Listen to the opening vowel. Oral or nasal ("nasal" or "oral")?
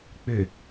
oral